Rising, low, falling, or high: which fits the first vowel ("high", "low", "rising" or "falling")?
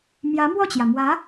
rising